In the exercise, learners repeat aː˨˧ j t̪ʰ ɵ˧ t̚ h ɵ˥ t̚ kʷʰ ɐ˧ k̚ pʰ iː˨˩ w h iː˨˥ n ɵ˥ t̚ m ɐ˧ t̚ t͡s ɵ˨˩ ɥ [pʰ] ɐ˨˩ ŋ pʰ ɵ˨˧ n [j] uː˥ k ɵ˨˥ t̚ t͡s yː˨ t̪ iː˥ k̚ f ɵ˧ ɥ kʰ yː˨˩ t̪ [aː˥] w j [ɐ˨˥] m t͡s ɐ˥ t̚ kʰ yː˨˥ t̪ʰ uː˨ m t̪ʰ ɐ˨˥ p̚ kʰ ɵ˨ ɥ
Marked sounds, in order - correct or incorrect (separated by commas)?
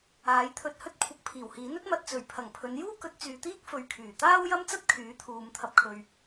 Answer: correct, correct, correct, incorrect